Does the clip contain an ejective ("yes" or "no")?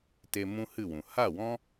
no